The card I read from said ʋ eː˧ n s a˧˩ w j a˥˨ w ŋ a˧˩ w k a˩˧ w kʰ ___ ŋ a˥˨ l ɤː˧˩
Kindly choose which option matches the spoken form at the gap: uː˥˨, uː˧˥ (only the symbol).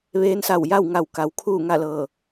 uː˥˨